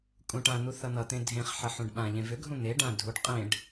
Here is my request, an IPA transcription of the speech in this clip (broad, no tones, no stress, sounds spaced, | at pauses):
kʼ ũ ʈ ã n̪ u θ ʌ n̪ ʌ t̪ ẽ dʱ ẽ χ ħ ʌ ħ ũ ɖ ɓ ã ʎ ẽ v ʏ ɡʱ ũ n̪ e ɖ ã dʱ u ɖ qʼ ẽ ɖ